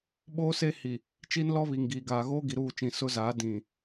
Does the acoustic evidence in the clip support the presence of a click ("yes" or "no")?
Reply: no